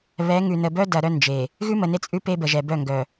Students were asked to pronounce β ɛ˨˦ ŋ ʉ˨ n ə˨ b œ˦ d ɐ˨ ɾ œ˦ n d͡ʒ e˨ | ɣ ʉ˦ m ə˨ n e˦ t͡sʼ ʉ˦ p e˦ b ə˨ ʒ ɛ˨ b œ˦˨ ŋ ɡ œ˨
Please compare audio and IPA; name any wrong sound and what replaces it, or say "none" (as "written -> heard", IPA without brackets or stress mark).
none